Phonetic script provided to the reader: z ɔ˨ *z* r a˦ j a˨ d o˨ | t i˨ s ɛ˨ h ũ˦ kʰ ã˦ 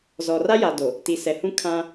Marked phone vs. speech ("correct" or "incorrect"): incorrect